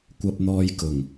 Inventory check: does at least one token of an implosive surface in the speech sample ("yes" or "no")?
no